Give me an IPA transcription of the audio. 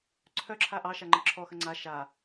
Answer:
ǀʰœǁʰa ʔɑʃaŋ͡ǃə ǁʰɔxə ŋ͡ǀa ʃa

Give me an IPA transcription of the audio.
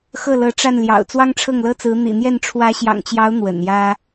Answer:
xɤ˥˩lɤ˧˥ʈ͡ʂa˥˩n ljɑ̰˨˩ʊ̯ t͡swɑ˥ŋʈ͡ʂʰɤ˥˩ŋlɤ˥t͡sɹ̩˧˥ n̪ḭ˨˩n̪jɛ˥˩n ʈ͡ʂʰwä˧˥ɕjɑ̰˨˩ŋt͡ɕjɑ˧˥ʊ̯ n̪wə̰˨˩njä˥

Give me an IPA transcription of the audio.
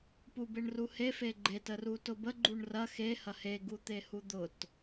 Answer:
pubeɳruhe feɡ͡ǃet ərutʊbə ɡ͡ǃuɳrɐx e hɐhe ɡut̪ehud̪ʊt

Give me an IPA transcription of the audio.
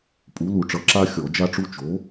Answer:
pʼu˩˥lu˧˩˧ʈ͡ʂʌ˩˥ ǁa˥xʲɔ˧˩˧ d͡ʒa˥ʈ͡ʂu˥ t͡ʃo˩˥

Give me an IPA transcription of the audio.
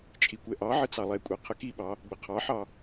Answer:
t͡ʃʼikʷɛʔɑʕə t͡sɑlˠɛkʷʼɛ qʰəkiɓɑ | ɡ͡bəqʰɑħɑ

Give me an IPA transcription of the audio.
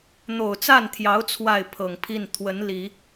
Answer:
n̪o˨˩ʊ̯t͡sa˥˩nt̪ʰjɑ˧˥ʊ̯ t͡sʰwa˥˩ɪ̯pʰɤ˨˩ŋpʰi˥˩n t̪ʰwə˧˥n li˨˩˦

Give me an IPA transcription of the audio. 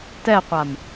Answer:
tɛqʷam

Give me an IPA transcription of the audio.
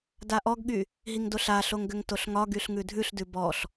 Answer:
daʔɔɡɠy | ɦiŋdoɬaɬoŋ ɡʏŋtoɬŋɒɡyɬ ŋʉdʱʉɬdʉ bɔɬ

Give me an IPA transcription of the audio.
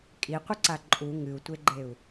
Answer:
kʼiqʷəǀa ǃʼu ŋɨu̯tʷeɡ͡ǃeu̯

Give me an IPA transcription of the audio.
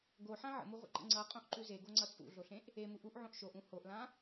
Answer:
ɡoħã ʕə̰muʁʷə̰ǃə̰ ŋ͡ǀʌqʼõʔǃʉ zeɡoŋ͡ǀʌ t͡sʼṵɮoɬẽʔ | emuʔ uʔʕõʔ ʃoʔũ hoʔlã

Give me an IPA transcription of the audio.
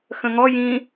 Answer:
xə̃ŋɔ jĩ

